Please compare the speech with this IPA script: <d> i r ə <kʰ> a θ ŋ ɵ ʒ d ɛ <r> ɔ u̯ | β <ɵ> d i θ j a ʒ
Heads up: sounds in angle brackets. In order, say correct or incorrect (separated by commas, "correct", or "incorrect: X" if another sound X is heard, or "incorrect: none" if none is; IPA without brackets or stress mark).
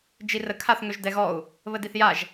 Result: incorrect: d͡ʒ, correct, incorrect: ɣ, incorrect: ə